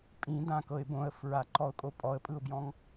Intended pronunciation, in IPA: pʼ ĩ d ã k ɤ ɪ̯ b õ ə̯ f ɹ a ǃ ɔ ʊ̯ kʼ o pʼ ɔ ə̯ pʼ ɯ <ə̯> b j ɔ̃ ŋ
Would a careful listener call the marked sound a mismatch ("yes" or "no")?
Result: yes